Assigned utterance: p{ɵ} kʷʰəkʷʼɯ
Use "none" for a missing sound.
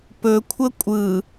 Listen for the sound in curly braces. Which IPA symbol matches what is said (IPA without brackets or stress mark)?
ɵ